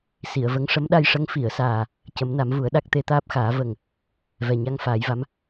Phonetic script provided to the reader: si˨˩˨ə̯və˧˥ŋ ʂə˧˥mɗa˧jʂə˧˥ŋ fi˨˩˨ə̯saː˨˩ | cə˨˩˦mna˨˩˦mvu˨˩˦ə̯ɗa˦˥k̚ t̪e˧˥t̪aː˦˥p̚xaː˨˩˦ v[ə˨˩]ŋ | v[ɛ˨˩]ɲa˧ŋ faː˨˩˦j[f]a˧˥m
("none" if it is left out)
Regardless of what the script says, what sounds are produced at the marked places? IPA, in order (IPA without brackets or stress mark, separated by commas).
ə˨˩, ɛ˨˩, v